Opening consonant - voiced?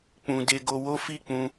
no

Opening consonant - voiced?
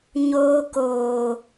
yes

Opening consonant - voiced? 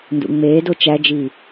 yes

